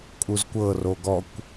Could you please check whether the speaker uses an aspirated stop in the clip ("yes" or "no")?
no